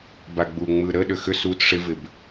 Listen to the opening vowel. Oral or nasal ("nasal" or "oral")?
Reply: oral